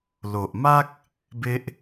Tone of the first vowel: low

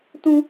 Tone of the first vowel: high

